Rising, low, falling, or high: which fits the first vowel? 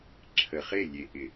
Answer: low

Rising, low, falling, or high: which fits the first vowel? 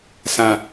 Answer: low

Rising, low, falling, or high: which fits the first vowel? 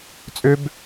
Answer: high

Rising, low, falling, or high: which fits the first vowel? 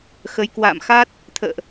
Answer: rising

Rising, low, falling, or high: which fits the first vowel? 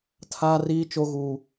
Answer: high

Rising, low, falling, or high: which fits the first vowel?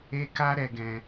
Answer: high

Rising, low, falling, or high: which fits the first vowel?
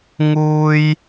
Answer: high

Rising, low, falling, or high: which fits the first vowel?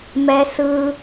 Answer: low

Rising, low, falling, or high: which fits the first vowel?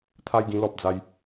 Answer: high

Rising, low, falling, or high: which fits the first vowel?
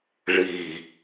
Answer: low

